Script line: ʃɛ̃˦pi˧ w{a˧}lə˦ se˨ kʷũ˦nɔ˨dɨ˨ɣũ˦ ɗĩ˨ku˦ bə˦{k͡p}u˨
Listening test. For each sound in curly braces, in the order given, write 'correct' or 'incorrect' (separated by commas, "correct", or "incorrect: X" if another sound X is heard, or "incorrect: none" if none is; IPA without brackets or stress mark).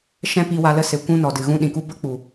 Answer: correct, correct